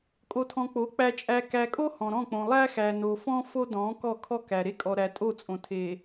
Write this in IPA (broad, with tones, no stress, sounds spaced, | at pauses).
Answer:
kʼ o˨ tʰ ɔ̃˨ k͡p o˨˦ k͡p æ˨ t͡ʃʼ æ˨ k æ˨ kʼ o˦ h ɔ̃˨ ɾ ɔ̃˦˨ k͡p õ˨ lˠ æ˦ x æ˨ n o˨ f ɔ̃˦ f o˦ d ɔ̃˨˦ k ɔ˦˨ kʰ ɔ˦ k æ˨ ɾ e˦ kʼ ɔ˨ ɾ æ˨ tʼ o˦˨ t͡sʼ õ˨ tʰ e˨